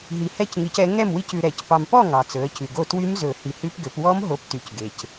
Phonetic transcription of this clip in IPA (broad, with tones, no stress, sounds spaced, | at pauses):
ɦ i˨˦ h ɛ˦˥ c ŋ i˨˦ c ɛ˨˦ ŋ ɛ˥˨ m w i˦˥ c ʉ˨ ɾ ɛ˨˩˦ c p ɑ˨ m p ɔ˥˨ ŋ ɑ˨ t͡s ɵ˨˦ ə̯ c ʉ˨ ɡ o˥˨ t w y˦˥ m z ɵ˨˩˦ h i˨ h ʉ˦˥ p ɡ ø˨˦ p w ɔ˦˥ m ɦ o˨˦ p t y˨ c ɡ e˨ c